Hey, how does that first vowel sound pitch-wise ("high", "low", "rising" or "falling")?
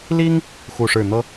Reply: high